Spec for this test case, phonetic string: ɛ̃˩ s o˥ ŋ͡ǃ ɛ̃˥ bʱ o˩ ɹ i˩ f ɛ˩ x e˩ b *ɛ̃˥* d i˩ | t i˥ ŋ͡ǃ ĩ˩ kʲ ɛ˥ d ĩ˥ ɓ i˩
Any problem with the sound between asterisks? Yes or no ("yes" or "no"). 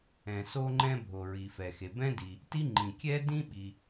no